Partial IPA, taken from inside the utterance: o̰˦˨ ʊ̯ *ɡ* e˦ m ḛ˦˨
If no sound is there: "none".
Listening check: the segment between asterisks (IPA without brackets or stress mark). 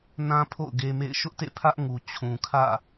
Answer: ɡ